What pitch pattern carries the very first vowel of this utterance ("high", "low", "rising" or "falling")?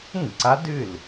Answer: falling